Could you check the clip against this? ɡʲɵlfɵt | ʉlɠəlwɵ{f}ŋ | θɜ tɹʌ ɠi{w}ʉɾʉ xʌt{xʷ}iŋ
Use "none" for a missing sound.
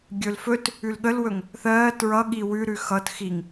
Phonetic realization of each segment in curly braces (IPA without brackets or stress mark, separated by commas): none, w, x